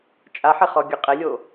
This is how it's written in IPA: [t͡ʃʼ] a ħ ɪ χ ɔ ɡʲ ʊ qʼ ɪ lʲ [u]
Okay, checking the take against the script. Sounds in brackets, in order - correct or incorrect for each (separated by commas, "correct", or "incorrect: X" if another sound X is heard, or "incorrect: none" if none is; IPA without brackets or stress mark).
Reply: correct, incorrect: o